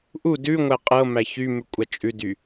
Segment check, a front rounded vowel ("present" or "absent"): present